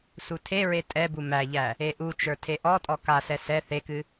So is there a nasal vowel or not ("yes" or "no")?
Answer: no